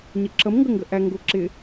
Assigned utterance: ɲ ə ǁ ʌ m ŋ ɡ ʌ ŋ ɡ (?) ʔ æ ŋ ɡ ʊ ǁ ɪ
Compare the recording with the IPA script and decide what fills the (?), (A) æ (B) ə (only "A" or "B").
B